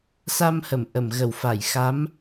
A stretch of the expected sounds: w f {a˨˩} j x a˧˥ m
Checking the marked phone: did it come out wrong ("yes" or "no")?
yes